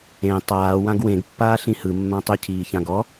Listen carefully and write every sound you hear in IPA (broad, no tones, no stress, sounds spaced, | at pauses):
ẽ tˤ aː w ã ɡ w ẽ ɡ pː aː ɬ ĩ h ɯ mː ã tˤ ʏ cʰ iː ç ã ɡ ɔ